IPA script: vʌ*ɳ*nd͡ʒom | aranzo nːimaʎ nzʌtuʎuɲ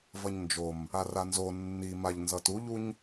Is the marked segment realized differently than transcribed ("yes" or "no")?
yes